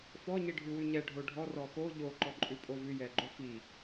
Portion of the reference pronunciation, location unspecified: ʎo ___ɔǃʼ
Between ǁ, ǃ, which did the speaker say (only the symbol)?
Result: ǃ